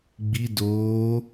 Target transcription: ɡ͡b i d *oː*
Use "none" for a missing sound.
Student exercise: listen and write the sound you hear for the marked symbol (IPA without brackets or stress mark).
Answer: oː